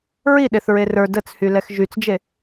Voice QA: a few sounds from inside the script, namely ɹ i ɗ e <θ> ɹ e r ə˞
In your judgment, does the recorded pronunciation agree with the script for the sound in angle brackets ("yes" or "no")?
yes